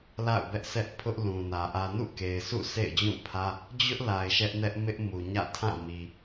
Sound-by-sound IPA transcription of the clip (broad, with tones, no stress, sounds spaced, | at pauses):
l a̰˦˨ ʊ̯ b ɛ˦ ʔ s ɛ˦ ʔ pʰ ʊ˦ ʔ l ũ˨ n ä˨ ʔ ä˨ n ṵ˦˨ k e˨ ɪ̯ s ṵ˦˨ s ḛ˦˨ ɪ̯ d͡ʑ ũ˦˨ pʰ ä˦ | d͡ʑ ʊ˦ ʔ l a˨ ɪ̯ ʃ ɛ˦ ʔ n ɛ˦ ʔ m ɪ˦ ʔ m u˨ ɲ ä̰˦˨ tʰ ã˦˨ m i˨